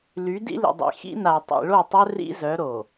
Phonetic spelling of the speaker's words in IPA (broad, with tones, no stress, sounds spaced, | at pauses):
l y˨˦ d ḭ˦ l ḭ˨ dˤ ḭ˨ x ḭ˦ n a˨ tˤ ḭ˨ ɭ o˦˨ tˤ œ˦ r ḭ˦ z œ˨˦ ɾ o˨